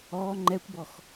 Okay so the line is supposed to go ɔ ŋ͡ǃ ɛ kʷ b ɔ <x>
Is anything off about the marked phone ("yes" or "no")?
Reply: no